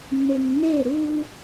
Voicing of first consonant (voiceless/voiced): voiced